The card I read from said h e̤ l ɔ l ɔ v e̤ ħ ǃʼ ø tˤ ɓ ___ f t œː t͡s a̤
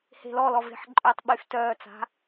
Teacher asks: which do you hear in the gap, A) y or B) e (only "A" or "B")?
A